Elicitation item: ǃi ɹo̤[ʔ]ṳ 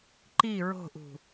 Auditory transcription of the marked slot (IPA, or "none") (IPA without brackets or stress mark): ʔ